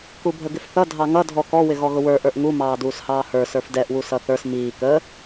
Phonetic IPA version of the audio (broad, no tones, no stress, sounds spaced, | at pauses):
k u bʱ ə ɡ ɪ f θ ʌ dʱ ɑ ŋ ʌ dʱ ɔ k ɔ w ɪ ɣ ɔ ɣ ʊ w ə˞ ʔ ə˞ ʔ ŋ u m ɑː d uː s h ɑː h ə˞ s ə˞ f d ɛ ʔ w u s ʌ θ ə˞ s m iː k ə